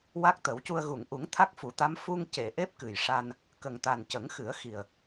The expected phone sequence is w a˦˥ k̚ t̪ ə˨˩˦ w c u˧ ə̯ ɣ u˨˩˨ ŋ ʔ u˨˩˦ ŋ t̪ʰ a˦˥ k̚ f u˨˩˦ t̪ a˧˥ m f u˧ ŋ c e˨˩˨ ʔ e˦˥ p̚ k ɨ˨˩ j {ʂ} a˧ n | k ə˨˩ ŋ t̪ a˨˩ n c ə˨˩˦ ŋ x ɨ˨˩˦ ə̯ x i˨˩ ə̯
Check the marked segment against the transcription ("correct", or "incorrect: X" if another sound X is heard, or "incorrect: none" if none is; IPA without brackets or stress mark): correct